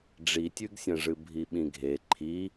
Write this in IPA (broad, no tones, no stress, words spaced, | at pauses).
ɖ͡ʐitʲʉɡsʲɐ̃ʐɨ bʱiɓĩɡʱe ǃʰi